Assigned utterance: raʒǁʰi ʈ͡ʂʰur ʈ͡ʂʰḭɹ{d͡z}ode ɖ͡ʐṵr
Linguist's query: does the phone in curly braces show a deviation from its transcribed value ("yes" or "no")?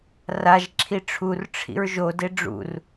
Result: yes